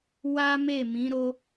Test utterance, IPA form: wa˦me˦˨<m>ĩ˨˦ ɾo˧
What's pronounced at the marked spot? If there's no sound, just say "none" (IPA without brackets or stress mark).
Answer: m